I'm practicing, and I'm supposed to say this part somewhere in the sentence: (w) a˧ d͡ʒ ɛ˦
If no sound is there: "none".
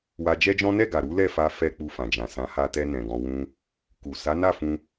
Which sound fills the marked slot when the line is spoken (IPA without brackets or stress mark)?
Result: w